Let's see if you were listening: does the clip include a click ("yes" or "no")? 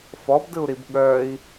no